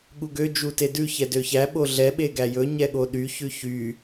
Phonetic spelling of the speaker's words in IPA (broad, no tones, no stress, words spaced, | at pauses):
ɠuɡø d͡ʒutedʉ çɛdøçæ ɓoɮɛ ɓeɡæjɵ ɲɛɠoɗy çʉçy